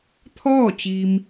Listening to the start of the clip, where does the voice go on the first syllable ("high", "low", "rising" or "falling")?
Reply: falling